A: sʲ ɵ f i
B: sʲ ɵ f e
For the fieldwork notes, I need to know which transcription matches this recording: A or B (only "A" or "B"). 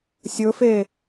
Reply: B